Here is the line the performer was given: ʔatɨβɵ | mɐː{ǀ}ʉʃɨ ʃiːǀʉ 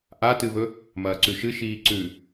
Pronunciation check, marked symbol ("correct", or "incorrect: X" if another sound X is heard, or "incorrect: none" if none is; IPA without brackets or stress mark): correct